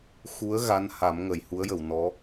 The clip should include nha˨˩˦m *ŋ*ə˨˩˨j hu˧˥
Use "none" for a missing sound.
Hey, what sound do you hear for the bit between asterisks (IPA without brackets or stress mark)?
ŋ